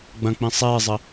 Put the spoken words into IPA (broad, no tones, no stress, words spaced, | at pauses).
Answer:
ɡ͡bɐ̃k͡pĩ sˤeːzˤɘ